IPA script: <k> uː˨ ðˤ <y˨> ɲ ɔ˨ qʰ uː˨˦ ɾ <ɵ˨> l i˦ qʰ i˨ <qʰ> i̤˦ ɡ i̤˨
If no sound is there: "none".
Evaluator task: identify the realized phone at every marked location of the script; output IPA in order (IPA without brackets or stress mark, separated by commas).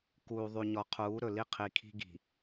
k, y˨, ɵ˨, kʰ